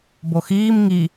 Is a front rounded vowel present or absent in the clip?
absent